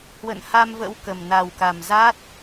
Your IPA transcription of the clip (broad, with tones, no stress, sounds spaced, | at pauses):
h w ə̰˧˨ n h a˧ m v ə̰˧˥ w k ə˨˩ m n a˨˩ w k a˨˩ m z a˦˥ t̚